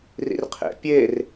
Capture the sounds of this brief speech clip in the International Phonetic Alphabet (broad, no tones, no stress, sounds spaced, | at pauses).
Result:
r ḭ r qʰ ḛ pʲ e r